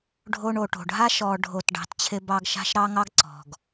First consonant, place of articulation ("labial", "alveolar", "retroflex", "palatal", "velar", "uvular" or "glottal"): retroflex